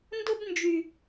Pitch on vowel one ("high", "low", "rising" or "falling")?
high